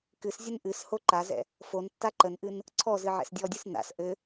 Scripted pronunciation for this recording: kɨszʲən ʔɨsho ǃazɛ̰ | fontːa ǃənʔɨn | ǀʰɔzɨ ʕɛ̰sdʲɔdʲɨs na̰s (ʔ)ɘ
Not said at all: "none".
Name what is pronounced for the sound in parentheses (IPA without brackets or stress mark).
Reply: ʔ